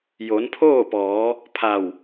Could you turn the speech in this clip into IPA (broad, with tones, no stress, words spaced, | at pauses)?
jo˩˧npʰoː˥˨pɔː˩˧ | pʰa˧˩w